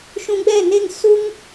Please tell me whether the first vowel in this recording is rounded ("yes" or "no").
yes